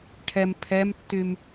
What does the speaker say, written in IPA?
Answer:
ʈʰ ɛ m pʰ ɛ m tː y m

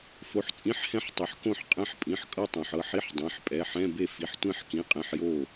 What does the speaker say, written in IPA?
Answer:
f o˩˧˩ ħ t͡sʼ ĩ˧˥˧ ħ h ɛ̃˥˧ ħ tˤ ɯ˩ ħ k õ˥˩ ħ qʼ ɛ̃˧˥˧ ħ pʼ ĩ˩˧˩ ħ kʼ ɤ˥˧ tˤ õ˩ ħ ɤ˥˩ ħ i˧˥˧ ħ dˤ ẽ˩˧˩ ħ pʼ ɛ˩˧˩ ħ ɛ̃˧˥˧ b e˥˩ f i˩˧˩ ħ tʷ ẽ˥˧ ħ k ĩ˧˥˧ qʼ ẽ˧˥˧ ħ j o˥˩

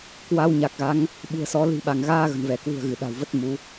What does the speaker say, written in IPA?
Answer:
k w a˧ w ɲ a˨˩ k̚ ɣ a˨˦ ŋ | ɓ ṳ˨˩ ə̯ s ɔ˨˦ l i̤˨˩ ɓ a˧˩ ŋ ɣ aː˧ ɣ ə̤˨˩ n v ɛ˧˩ k w ṳ˨˩ ə̯ ɣ ɨ˧˩ ɗ a̤˨˩ w v ə˦˥ t̚ m u˨˦

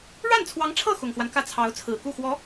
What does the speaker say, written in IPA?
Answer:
ɻ a˥˩ n t͡sʰ w ɑ˧˥ ŋ ʈ͡ʂʰ ɤ˥˩ x ʊ˨˩ ŋ x w a˦ n k ä˥˩ t͡sʰ ɑ˧˥ ʊ̯ t͡sʰ ɹ̩˨˩ k u˥˩ x w ɔ˧˥

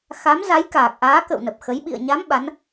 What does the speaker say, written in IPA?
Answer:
x a˨˦ m z a˨˦ j k aː˨˩ k̚ ʔ aː˨˦ k ə̰˧˨ w n ə˨˩ p̚ x ə˨˦ j ɓ ḭ˧˨ ə̯ ɲ a˨˦ m ɓ a˨˦ n

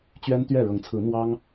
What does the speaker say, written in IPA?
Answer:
t͡ɕ ɥ ɛ˦ n t̪ ɥ ɛ˥˨ ɻ ɤ˨˦ ŋ t͡sʰ ɹ̩˨˦ n̪ w ɑ˦ ŋ

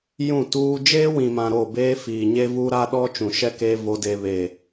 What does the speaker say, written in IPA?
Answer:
j ũ˦˨ t uː˦ d͡ʒ eː˦ w ĩ˨ m ã˨ ɾ o˦˨ b eː˦ f iː˨ ɲ e˦ v u˦ ɾ a˦ ɗ ɔ˦ t͡ʃ ũ˨ ʃ ɛ˦ k e˦ v o˦ d e˦ β e˦˨

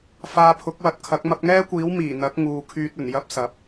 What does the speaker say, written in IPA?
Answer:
f aː˧ pʰ ʊ˨˥ k̚ w ɐ˧ t̚ kʰ ɐ˨˥ k̚ m ɐ˧ p̚ ŋ ɛː˥ kʷ iː˨˥ w m iː˨˩ n̪ ɐ˨˥ k̚ ŋ uː˨˧ kʰ yː˧ t̚ ɵ˨˩ n j ɐ˥ p̚ s ɐ˨˥ p̚

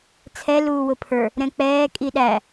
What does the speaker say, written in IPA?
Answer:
t͡sʰ ɛ l uː w ʊ pʰ ə˞ | ɾ ɛ̃ k͡p ɛː kʼ i ɗ æ

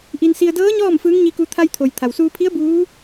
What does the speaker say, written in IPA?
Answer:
ʔ i˧ n s i˧ ə̯ d ɤː˧˥ ɲ ɔː˥˨ m f ɯː˧˥ ŋ ɲ i˧ k u˧ t̪ʰ a˧ j t̪ʰ o˩ j t̪ʰ a˩ w s uː˧ pʰ i˧˥ ə̯ b uː˧˥

